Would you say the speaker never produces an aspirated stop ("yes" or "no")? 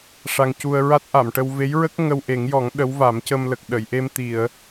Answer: yes